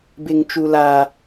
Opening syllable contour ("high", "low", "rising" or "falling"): high